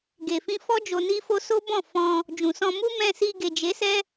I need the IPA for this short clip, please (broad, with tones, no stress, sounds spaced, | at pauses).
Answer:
ɡ e˨ f ĩ˧ f ɔ˦ d͡ʒ o˧ n i˦ f o˦ s o˦ b ɔ̃˦˨ f ɔ̃˧ | d͡ʒ ũ˨ s ɔ̃˧ m u˦ m ɛ̃˧ s i˧ ɡ e˨ d͡ʒ e˨˦ s ɛ˦